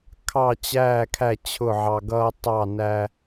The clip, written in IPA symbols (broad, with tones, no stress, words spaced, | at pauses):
kʰɑ˦˨t͡ɕæː˦˨kʰæ˦˨ t͡ɕʰʊ˦˨ʕɑ˧ɡʌː˦ tˤɑ˦˨ næ˧